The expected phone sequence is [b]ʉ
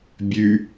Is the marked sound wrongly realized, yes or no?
yes